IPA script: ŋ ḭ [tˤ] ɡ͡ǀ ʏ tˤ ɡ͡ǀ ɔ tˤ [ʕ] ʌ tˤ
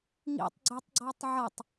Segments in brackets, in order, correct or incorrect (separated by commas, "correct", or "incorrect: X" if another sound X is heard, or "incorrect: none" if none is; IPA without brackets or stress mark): correct, correct